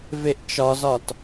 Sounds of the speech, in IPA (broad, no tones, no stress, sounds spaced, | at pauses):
v e ʔ t͡ʃ ɒ z ɒ t